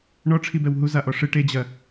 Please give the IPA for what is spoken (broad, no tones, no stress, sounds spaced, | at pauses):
ɳ ɔ ʈ͡ʂʰ i b ɛ w ɦ u z a ʔ ɔ ʂ ɨ ʈ e d͡ʑ ɐ